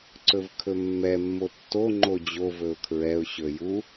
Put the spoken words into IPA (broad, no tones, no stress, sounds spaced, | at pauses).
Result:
ǀ ɵ v kʰ ɵ mː ɛ mː o tː o ŋ͡ǃ o d͡ʑ o v ɵ ʊ̯ kʰ ɹ ɛ ʊ̯ ɕ ɵ j u